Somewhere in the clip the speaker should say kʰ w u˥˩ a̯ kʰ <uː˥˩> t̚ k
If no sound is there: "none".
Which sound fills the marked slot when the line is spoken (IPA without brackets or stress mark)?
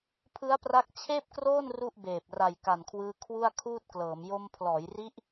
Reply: uː˥˩